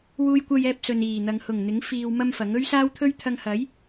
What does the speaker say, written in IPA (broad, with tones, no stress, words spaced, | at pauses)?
wuː˧jkʷɐ˧jɛː˧p̚ sɵ˨niː˨˩n̪ɐ˨ŋ hʊ˨˩ŋn̪ɪ˨˥ŋ fiː˧w mɐ˥mfɐ˨˥ŋ ɵ˥ɥsaː˥wt̪ʰɵ˥ɥ t̪ʰɐ˧ŋhɐ˨˥j